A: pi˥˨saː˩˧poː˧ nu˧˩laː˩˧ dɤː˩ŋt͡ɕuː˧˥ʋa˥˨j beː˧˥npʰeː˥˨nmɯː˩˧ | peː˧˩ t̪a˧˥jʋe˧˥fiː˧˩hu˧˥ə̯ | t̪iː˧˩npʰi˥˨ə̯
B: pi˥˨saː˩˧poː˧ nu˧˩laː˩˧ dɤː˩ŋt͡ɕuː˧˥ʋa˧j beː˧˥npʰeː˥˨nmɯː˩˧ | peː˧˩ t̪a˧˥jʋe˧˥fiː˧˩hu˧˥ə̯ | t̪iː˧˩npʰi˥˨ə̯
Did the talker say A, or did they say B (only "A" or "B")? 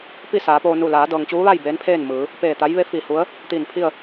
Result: A